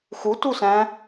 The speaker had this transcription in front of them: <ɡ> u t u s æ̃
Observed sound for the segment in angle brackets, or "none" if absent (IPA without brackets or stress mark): x